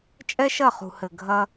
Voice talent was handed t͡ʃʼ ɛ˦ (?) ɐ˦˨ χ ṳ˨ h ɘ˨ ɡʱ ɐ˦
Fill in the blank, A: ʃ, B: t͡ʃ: A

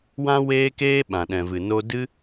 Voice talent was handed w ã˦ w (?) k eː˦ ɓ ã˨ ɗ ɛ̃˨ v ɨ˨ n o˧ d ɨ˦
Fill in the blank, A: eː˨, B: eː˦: B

